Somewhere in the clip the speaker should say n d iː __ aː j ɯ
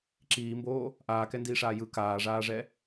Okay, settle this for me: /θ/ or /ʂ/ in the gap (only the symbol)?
ʂ